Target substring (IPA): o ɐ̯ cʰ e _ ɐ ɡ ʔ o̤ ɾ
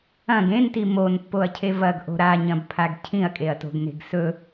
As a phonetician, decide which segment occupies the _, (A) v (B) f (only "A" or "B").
A